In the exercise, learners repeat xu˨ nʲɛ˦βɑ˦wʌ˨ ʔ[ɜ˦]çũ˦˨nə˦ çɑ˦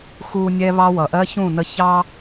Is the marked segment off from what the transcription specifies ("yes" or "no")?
no